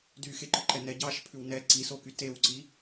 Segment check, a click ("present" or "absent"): present